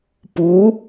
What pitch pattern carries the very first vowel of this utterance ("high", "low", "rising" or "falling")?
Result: rising